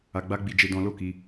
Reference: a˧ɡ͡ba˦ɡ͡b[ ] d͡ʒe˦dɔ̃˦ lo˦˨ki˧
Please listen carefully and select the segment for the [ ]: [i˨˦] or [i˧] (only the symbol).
i˧